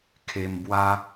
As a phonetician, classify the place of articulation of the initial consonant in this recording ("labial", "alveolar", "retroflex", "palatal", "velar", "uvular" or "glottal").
velar